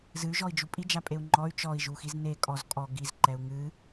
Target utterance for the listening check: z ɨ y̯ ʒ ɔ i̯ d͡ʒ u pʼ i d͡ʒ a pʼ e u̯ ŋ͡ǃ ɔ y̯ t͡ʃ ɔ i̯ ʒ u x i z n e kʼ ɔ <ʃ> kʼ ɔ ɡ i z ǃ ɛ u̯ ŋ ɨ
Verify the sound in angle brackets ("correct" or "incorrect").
incorrect